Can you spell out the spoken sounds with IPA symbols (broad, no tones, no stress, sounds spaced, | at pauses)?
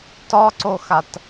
t ɒ ǀ o x a t